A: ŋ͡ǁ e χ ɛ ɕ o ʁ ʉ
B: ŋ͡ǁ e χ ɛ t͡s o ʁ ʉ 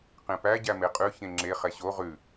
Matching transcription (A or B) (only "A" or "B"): A